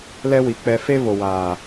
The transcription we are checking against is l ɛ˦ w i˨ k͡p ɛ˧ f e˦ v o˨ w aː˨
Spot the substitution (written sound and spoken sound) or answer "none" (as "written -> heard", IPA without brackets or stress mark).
none